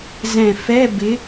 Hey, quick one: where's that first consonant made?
tongue tip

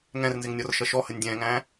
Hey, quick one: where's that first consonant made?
velum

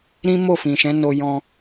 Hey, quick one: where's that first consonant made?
tongue tip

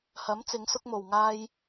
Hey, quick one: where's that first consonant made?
throat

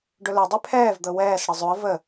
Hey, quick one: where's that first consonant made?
retroflex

